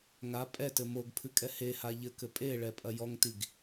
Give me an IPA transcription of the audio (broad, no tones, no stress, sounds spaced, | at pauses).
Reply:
ŋ a pʼ ɛ t ɘ m o ɡ pʰ ɨ kʼ ɛ h e h a ʎ ɘ k ɘ pʼ e ɭ ɛ pʼ ɐ j ɔ ŋ t i ɡ